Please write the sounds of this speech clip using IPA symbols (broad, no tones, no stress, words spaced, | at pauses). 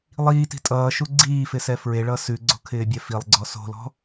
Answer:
lˠiːti̤ tʼʌːʃu ɡ͡ǀiːfɪsɛ fɹeɭʌ sʉɡ͡ǀo̤kʰɪːbʲɛ filˠɡ͡ǀɔ so̤lɔ̤